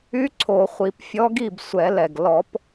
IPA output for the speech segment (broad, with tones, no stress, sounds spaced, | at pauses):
y˧˥ ǀʰ o˨˩˦ χʷ i˨˩˦ p fʲ ɔ˧˥ ɡ i˥˩ b sʷ ɛ˨˩˦ l ɛ˨˩ ɡ l ɔ˨˩˦ p